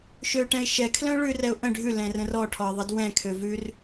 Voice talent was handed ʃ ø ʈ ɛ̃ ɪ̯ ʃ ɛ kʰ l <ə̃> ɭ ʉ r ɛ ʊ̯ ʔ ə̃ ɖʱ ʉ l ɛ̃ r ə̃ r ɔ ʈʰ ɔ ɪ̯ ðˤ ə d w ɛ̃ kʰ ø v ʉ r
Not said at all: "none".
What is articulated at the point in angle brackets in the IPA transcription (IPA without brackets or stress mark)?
œ̃